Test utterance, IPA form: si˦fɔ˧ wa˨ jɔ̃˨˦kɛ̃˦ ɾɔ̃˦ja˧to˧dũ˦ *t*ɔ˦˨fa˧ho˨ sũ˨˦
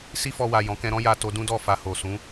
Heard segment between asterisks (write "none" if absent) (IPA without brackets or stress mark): d